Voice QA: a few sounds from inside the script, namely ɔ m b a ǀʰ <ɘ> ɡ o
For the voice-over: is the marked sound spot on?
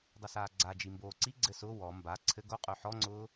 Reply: yes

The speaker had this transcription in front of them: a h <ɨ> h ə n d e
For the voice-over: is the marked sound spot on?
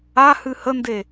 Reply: yes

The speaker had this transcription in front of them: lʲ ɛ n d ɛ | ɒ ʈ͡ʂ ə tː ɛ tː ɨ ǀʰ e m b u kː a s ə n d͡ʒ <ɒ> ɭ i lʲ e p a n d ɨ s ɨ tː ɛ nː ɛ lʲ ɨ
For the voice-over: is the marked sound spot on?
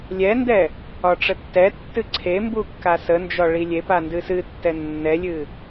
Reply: yes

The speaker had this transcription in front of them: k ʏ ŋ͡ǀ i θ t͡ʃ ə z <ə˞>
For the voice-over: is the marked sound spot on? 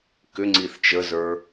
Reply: yes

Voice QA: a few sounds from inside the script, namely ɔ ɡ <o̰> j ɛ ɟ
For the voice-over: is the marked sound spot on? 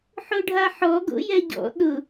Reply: yes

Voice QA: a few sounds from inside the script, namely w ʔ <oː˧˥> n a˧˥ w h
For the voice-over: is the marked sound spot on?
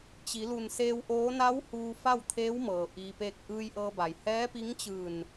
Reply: yes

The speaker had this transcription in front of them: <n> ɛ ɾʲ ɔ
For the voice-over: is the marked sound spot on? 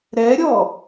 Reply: no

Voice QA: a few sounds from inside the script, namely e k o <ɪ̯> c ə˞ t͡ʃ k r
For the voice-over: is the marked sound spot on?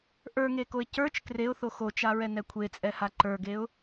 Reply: yes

